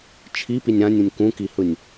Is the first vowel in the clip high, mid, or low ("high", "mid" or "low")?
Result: high